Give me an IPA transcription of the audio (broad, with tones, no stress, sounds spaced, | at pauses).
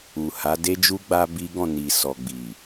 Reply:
u˨ h a˨˦ d e˦ d͡ʒ u˦ ɡ͡b a˦ b i˦ ɡ ɔ̃˦˨ n i˨ s ɔ˨ ɡ͡b i˨